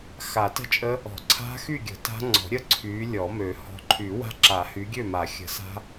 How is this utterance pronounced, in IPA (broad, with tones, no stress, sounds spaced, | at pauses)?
x a˨˩˦ t ə̤˥˨ t͡ʃʼ ə˦˥ | ɔ̤˨˩˦ ǀʰ a̤˦˥ x y˥˨ ɡʲ ə̤˨˩˦ t a̤˦˥ ŋ͡ǀ ɔ̤˨˩˦ ɾʲ ə˦˥ ǀʰ y˨˦ lʲ ɔ˨˩˦ m ø˨˩˦ h ɔ̤˨˦ ǃʰ y˨˩˦ w a̤˦˥ ǁ a˨˩˦ h y˨˦ ɡʲ ø˥˨ m a˨˩˦ xʲ ə̤˨˩˦ s a̤˦˥